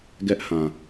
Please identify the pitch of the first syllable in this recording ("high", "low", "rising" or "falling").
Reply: high